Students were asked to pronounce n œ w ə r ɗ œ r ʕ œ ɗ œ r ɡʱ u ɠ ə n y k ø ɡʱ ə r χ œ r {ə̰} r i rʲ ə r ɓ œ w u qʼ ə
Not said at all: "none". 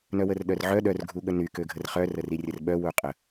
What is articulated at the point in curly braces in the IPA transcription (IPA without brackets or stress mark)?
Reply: ə